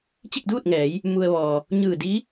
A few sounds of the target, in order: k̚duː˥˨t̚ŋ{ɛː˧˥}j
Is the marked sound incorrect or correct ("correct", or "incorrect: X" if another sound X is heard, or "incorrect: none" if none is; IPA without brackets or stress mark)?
incorrect: ɛː˩˧